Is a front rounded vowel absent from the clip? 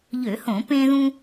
no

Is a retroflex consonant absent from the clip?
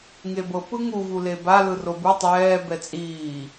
yes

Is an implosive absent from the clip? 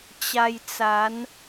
yes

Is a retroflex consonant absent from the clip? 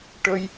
no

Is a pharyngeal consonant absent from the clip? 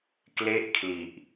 yes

